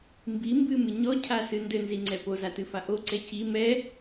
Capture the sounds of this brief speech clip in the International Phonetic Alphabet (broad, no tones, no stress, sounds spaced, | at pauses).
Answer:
m b i m b ɨ m ɨ ɲ ɔ cʰ a s ɨ n d ɘ n z i ŋ͡ǀ ɛ p o z a t ɨ f a ʔ o ǀ ɛ c i m ɛ